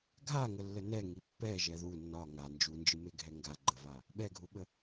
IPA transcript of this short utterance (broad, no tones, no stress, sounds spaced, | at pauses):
ɡʱ a ŋ ə lː ə n ɛ ŋ i pː ɛ ʒ ɛ ð u nː ɒ ŋ a n d͡ʒ u n d͡ʒ ɨ m e ɡʱ ɛ ŋ ɡ a ɡ͡ǃ ə v a | ɓ ɛ ɡʱ u ɓ ə